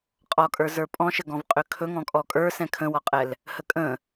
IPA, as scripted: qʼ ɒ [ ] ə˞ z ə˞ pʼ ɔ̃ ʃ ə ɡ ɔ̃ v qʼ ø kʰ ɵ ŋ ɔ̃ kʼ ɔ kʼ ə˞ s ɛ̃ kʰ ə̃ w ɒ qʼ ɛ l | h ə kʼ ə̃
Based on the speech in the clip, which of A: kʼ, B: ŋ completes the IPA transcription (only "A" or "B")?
A